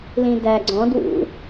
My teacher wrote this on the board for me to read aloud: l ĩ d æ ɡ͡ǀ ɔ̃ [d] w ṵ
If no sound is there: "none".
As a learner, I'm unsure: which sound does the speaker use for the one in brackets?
d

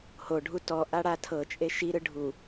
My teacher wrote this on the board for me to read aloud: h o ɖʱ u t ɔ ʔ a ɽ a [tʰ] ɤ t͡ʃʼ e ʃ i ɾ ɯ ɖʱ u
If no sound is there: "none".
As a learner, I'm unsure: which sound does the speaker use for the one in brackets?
tʰ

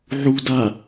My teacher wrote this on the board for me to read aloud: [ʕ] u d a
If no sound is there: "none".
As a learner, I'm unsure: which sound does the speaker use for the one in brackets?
ʕ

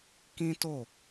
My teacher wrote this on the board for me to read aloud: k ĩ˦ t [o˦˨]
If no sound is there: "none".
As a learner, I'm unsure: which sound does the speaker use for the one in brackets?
o˦˨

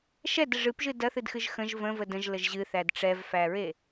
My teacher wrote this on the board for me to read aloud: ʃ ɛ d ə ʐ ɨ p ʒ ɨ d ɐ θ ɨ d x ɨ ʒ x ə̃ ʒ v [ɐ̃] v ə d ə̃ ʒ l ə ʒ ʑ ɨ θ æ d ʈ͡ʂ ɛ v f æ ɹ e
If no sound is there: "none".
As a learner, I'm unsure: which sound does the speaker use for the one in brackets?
ə̃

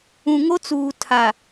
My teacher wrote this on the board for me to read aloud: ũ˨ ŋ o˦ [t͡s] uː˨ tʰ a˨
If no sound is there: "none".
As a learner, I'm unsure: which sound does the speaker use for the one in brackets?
t͡s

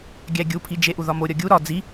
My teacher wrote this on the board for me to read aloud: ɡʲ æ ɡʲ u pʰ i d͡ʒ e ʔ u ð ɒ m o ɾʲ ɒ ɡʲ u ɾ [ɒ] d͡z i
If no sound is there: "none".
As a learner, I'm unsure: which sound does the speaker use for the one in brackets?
ɒ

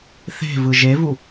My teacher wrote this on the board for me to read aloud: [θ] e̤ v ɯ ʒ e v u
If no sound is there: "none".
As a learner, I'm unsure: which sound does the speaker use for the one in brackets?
θ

